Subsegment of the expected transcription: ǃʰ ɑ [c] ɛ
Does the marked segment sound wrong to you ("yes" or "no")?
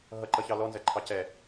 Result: no